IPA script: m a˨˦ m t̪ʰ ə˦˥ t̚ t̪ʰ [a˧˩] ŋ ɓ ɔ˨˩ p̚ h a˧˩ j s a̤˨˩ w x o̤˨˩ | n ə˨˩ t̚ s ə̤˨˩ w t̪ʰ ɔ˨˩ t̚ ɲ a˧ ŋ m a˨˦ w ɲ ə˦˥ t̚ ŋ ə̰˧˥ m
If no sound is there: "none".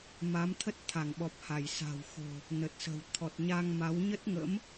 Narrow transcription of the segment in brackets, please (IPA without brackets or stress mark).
a˧˩